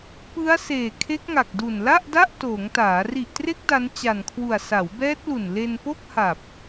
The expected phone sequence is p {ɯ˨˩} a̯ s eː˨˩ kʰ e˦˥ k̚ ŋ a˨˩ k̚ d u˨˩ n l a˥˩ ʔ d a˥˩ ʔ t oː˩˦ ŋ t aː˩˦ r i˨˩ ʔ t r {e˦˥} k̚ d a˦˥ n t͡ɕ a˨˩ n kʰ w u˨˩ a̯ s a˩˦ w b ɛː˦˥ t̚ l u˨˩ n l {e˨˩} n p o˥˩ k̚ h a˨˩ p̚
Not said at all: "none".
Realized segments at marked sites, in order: ɯ˦˥, e˦˥, e˧

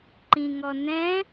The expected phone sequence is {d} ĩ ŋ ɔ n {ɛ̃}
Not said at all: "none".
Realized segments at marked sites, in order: ǃ, ɛ̃

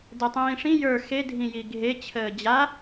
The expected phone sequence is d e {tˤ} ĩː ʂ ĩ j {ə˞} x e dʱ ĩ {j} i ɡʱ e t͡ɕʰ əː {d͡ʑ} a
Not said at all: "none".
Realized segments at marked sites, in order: tˤ, ə˞, j, d͡ʑ

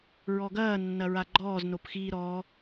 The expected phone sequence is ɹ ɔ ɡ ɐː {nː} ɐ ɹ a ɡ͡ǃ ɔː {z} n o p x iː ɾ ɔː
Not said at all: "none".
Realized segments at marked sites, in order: nː, z

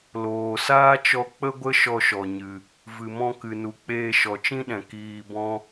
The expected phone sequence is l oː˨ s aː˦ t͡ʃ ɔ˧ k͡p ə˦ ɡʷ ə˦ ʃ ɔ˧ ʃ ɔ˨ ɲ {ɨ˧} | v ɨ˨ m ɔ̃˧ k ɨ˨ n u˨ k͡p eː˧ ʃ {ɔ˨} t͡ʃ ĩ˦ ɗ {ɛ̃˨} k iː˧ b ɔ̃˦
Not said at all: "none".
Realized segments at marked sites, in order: ɨ˧, ɔ˨, ɛ̃˨

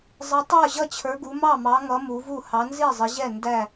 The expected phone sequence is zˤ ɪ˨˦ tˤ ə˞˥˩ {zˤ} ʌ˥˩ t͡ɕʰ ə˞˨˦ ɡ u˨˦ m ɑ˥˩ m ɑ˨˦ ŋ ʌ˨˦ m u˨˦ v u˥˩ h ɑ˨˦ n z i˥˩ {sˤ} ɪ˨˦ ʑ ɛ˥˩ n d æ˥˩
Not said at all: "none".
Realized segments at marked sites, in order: ʑ, zˤ

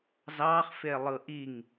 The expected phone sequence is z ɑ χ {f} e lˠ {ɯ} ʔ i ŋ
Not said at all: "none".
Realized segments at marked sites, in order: f, ɯ

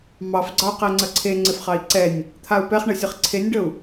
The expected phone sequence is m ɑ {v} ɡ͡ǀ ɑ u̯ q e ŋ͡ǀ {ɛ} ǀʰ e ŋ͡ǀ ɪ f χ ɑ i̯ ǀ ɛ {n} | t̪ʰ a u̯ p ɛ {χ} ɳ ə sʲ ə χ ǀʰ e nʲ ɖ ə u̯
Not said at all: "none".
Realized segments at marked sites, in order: f, ə, nʲ, χ

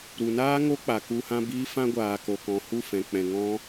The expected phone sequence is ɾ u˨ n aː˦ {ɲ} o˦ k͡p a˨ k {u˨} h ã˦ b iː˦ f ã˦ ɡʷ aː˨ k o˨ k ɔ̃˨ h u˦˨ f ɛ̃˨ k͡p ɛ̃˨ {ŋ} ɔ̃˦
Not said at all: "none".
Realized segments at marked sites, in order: ŋ, u˧, ŋ

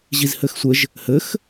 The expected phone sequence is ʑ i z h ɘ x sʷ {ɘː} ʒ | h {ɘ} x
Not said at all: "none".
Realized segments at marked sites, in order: ɘ, ɘ

